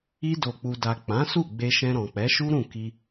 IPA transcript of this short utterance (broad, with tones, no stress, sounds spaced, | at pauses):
i˧ d o˨ k͡p u˨ d a˨ k͡p ã˨˦ s u˦˨ ɡ͡b e˧ ʃ ɛ̃˧ ɾ ɔ̃˨ k͡p ɛ˨˦ ʃ u˦ ɾ ũ˦˨ k i˧